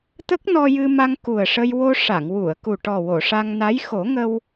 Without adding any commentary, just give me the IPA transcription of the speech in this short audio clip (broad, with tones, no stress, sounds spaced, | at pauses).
t̪ ə˦˥ k̚ n ɔ˧ j ɨ˧ m a˧ ŋ k u˨˩ ə̯ ʂ ə˧ j w o˧ ʂ a˨˩˨ ŋ w u˨˩˨ ə̯ k u˨˩ ʈ ɔ˨˩ w o˨˩˨ ʂ a˧ ŋ n a˧˥ j x o˨˩˦ ŋ ə˧ w